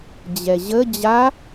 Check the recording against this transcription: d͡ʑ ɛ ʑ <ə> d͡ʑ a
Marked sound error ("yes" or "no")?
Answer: no